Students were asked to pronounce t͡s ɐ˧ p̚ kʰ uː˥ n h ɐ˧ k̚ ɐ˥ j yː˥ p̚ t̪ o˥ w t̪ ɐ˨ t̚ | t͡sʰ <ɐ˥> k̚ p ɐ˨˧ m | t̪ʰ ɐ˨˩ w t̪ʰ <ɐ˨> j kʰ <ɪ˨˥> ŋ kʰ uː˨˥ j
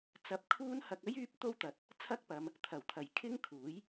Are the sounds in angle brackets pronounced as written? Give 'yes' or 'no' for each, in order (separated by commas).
yes, no, no